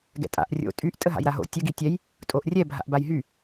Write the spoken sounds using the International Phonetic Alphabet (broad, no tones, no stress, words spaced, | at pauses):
ɡɛ̰tʼa̰ʔ rʲo̰ tʼyʔ tʼəɦa̰jɾaɦo̰ tʲə ɡitʲɛj | tʼoʔrʲɛ bʱa̰ʔbajɦy